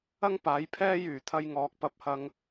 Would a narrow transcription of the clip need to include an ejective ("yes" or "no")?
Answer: no